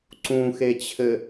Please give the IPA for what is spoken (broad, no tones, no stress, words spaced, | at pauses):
ǀũxet͡ɕʰɘ